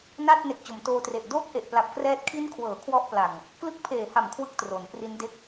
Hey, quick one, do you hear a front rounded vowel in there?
no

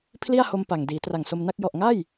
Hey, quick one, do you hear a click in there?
no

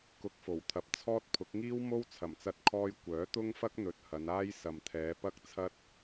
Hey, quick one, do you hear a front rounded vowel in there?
yes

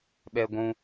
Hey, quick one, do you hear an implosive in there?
yes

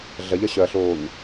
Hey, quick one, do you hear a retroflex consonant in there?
no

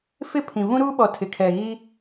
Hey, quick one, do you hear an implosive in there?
yes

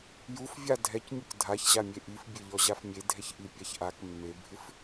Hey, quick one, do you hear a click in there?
no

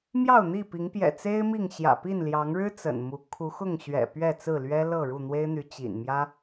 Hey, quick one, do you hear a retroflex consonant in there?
yes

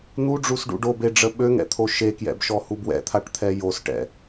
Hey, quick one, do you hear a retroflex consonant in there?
yes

